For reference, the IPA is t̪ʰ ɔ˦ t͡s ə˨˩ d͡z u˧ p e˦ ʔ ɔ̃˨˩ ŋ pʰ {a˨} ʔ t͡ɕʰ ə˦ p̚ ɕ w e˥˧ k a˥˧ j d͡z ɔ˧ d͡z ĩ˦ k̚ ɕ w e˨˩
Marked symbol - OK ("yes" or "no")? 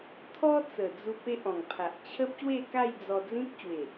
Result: yes